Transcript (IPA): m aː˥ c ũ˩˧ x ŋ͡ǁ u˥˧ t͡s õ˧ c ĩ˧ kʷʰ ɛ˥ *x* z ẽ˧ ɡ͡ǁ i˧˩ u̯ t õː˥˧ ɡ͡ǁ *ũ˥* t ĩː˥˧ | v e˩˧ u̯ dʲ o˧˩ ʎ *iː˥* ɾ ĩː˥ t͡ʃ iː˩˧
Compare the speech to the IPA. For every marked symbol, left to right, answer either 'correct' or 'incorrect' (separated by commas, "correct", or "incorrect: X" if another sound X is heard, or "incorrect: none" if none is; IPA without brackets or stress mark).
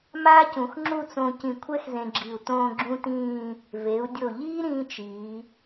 correct, correct, correct